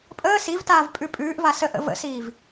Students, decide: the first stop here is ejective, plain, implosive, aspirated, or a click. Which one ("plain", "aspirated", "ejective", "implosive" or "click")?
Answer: ejective